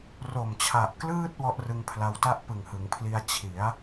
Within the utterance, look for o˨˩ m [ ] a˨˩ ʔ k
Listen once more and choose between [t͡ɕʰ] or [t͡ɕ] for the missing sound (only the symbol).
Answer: t͡ɕʰ